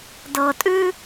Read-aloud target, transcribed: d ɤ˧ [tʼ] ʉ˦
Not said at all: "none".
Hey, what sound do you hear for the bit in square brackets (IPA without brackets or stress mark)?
tʼ